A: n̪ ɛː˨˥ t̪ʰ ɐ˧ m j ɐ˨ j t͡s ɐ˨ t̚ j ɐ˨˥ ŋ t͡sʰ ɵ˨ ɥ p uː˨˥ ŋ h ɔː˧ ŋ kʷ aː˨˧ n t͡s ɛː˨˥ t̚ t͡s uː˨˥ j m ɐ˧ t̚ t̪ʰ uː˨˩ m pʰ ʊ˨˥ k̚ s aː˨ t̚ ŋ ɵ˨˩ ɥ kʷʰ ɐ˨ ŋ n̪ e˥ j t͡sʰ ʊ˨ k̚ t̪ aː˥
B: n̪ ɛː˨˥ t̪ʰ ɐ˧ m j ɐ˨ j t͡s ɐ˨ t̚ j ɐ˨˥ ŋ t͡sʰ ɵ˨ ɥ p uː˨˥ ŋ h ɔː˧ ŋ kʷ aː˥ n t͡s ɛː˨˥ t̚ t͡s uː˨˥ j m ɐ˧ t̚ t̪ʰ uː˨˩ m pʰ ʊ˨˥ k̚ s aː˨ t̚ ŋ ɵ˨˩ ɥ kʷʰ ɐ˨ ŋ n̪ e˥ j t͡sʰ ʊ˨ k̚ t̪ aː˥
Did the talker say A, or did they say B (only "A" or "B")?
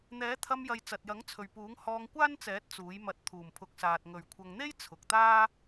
B